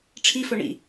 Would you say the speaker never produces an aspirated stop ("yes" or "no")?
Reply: no